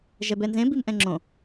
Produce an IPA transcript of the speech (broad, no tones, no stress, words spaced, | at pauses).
ʒɛbɛnzẽ bimʔɛ̃ŋ͡ǁõ